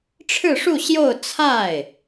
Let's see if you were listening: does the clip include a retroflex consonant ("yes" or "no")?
yes